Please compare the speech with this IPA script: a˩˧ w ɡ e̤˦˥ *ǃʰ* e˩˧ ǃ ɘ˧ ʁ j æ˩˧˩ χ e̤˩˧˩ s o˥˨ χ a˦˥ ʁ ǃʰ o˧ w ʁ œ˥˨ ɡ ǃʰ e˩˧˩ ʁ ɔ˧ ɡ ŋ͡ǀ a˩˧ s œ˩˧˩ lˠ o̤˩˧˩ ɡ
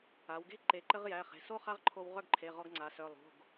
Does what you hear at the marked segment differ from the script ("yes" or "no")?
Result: yes